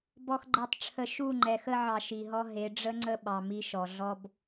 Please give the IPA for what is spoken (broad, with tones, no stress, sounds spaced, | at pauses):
b ɔ˨ x ɡ͡ǃ e˨ tˤ ʈ͡ʂʰ ə˨ ʃ u˦˨ ŋ͡ǃ ɛ˨ x ə˦ ʕ ɑ˨ ʃ i˨ ɦ ɔ˦ ɦ e˨˦ ɖ͡ʐ ə˦ ŋ͡ǀ ə˦ ɓ ɑ˨ m i˦ ʃ ɔ˨ ɮ ɔ˦ b